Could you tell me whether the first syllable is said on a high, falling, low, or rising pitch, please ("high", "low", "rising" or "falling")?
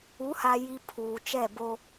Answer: rising